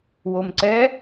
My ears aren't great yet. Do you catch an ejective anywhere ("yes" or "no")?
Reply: no